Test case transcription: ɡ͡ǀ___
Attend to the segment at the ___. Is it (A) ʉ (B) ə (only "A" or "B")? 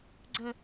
B